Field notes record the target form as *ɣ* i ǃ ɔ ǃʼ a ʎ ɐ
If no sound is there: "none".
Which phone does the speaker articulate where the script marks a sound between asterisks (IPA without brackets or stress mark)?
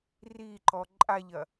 r